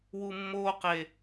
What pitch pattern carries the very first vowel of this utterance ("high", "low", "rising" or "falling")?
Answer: low